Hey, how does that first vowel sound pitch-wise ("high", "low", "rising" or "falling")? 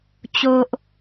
low